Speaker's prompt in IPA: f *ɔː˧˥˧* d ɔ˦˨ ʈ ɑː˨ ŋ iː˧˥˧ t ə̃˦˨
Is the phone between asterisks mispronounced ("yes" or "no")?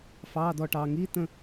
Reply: yes